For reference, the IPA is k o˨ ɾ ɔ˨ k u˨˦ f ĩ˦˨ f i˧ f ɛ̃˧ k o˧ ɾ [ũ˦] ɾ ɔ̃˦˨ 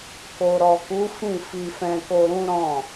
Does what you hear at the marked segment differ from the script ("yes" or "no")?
no